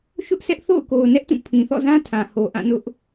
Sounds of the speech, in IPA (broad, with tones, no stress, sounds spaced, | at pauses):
ʃ ʊ˦ ʔ s ɛ˦ ʔ θ o̰˦˨ ʊ̯ k o˨ ʊ̯ n ɛ˦ ʔ t ũ˦˨ pʰ ĩ˨ θ ɔ̰˦˨ z ã˦ tʰ ã˨ h o˨ ʔ ã˦˨ n ʊ˦ ʔ